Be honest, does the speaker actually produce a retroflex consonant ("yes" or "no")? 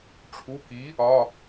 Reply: yes